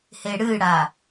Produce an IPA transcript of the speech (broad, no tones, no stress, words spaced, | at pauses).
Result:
heɽɨɽa